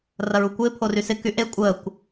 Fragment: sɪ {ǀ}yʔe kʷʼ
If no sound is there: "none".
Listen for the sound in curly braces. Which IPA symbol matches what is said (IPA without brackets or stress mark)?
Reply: k